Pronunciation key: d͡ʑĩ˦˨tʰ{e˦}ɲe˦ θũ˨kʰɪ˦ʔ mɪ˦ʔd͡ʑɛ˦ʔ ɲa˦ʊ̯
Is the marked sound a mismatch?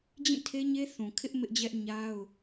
no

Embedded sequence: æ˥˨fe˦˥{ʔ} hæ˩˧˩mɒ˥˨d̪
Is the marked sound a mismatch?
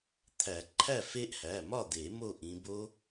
no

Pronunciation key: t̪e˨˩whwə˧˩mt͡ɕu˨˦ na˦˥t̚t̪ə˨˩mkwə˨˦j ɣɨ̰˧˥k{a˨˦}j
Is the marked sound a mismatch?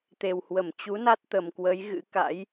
yes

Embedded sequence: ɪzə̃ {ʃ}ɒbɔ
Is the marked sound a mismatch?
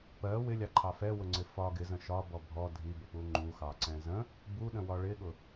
no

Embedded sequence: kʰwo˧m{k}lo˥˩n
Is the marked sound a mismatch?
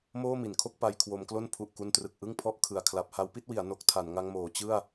no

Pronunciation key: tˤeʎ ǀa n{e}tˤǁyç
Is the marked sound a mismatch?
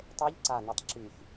yes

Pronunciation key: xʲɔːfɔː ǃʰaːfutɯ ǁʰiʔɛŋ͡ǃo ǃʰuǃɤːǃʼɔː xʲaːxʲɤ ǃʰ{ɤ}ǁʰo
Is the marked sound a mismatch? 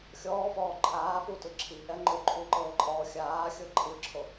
yes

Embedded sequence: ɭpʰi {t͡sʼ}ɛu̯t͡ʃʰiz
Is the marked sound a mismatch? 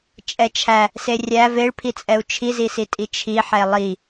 no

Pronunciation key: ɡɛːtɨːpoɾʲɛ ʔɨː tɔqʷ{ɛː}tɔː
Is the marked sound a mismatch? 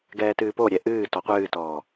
yes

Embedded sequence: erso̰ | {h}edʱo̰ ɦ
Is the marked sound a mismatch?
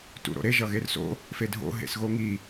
yes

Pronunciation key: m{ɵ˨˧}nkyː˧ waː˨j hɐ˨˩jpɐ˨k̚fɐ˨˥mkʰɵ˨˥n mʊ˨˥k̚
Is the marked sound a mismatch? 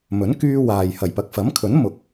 yes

